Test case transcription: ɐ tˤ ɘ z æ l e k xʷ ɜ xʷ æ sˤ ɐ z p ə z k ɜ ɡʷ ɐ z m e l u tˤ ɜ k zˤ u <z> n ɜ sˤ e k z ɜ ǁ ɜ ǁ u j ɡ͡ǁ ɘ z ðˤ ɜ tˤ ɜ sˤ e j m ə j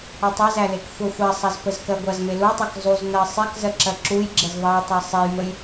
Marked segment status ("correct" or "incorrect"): correct